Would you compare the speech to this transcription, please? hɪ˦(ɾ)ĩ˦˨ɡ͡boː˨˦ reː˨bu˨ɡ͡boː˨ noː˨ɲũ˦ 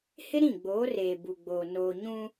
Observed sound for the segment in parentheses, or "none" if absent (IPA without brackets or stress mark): ɾ